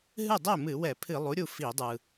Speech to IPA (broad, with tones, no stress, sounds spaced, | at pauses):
ɦ ɨ˥˨ dˤ ɛ˥˨ m ɨ˧˩˧ w ɛ˧˩˧ pʰ ɨ˧˩˧ lˠ u˩˥ ɾʲ u˥˨ f i˧˩˧ dˤ ɯ˨˩